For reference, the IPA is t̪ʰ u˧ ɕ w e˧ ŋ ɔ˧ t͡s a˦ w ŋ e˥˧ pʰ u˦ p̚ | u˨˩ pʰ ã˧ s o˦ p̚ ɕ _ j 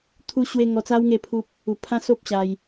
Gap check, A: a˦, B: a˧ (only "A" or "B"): B